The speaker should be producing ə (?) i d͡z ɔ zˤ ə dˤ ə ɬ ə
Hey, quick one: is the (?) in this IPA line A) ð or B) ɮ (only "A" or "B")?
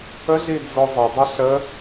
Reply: B